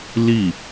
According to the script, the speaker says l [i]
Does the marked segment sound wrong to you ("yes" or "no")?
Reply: no